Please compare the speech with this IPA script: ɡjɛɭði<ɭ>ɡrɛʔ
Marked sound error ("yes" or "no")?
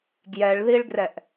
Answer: no